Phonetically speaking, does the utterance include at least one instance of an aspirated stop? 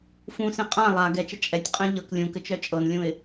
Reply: no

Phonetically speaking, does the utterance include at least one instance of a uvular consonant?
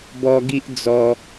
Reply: no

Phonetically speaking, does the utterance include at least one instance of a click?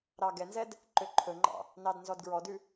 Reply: yes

